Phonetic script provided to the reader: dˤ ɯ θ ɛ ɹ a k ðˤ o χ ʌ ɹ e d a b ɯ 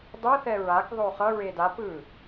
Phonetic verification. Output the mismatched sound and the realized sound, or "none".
b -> p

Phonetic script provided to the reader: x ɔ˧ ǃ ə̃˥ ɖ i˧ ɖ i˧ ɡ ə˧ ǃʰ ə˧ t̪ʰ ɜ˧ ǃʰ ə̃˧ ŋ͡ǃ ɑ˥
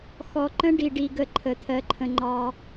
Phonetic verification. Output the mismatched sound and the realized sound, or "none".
none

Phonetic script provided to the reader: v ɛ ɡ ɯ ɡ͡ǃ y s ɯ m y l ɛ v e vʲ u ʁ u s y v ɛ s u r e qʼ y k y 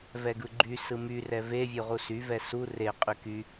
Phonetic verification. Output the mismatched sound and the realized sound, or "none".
l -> r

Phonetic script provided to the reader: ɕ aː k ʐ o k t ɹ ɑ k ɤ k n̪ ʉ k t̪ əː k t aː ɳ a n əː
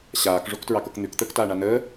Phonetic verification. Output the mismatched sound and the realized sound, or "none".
none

